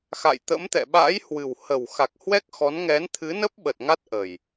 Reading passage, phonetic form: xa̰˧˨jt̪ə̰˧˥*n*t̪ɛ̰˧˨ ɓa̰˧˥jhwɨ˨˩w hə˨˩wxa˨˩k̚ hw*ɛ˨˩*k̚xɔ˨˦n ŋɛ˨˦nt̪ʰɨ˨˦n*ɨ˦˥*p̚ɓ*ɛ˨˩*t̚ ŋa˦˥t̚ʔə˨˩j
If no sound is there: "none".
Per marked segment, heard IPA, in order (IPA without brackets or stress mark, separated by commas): m, ɛ˦˥, ə˦˥, ə˨˩